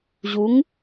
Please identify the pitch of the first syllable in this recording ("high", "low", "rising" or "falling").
rising